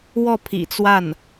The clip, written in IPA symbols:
w ɔ˥˩ pʰ ḭ˨˩ t͡s w a˥˩ n

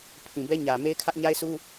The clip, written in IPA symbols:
pʰ ĩ˨ b ɛ˦ ɲ ä˨ m e˦ ɪ̯ kʰ ä˦ ʔ ɲ a˦ ɪ̯ s u˦

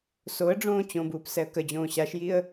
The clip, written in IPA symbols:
s o ə̯ ɖ͡ʐ õː t͡ɕ õ b uː p s ɛ ə̯ k ə d͡ʑ õː ɕ a ʃ j i ə̯

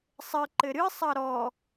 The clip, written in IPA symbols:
sˤ ɘ ǃ ɘ ɾ ɨ sˤ ɐ ɾ ɔ

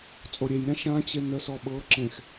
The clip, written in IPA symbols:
t͡sʼ o ɾʲ e j ɾʲ ã ʃ ã t͡ɕ e n ə s ɔ ɓ ɤ ǁ ẽ x

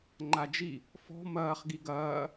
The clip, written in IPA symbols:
ŋ͡ǃ a d͡ʒ i | f ɔ̤ m ɐː χ ɡ i ɡ ɐː

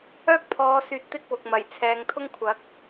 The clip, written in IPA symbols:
œː˥ k̚ pʰ ɔː˨˧ s yː˨ t̚ t̪ ɪ˥ k̚ w ʊ˨ k̚ m ɐ˨˩ j t͡sʰ ɛː˨˧ ŋ t̪ʰ ʊ˥ ŋ kʷʰ ɐ˨˥ k̚

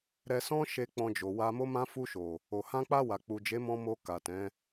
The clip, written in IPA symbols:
ɾ ɛ˧ s ɔ̃˦ ʃ e˧ k͡p ɔ̃˧ d͡ʒ o˨ w a˧ m o˦ m ã˦ f u˧ ʃ o˨ | o˨ h ã˧ k͡p a˧ w a˨ k͡p u˨ d͡ʒ e˨˦ m ɔ̃˧ m o˧ k a˨ t ɛ̃˨˦

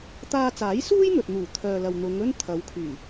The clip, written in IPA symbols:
t̪ aː˧ t͡s aː˨˥ j s uː˥ j n̪ ɵ˨ t̚ n̪ uː˨˩ t̪ʰ œː˨ l ɐ˨ w n̪ ʊ˨˧ ŋ ɵ˥ n t̪ʰ ɐ˨˧ w kʰ yː˨˩

